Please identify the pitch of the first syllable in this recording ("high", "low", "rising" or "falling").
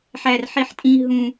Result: high